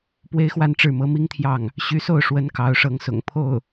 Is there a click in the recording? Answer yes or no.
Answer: no